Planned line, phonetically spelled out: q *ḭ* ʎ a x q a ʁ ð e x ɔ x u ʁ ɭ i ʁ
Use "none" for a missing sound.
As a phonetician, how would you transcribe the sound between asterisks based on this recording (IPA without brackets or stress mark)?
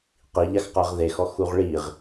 i